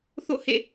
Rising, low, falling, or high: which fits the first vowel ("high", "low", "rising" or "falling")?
falling